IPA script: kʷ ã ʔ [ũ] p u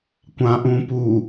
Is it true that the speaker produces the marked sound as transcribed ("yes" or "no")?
yes